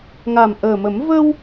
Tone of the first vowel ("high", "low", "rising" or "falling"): low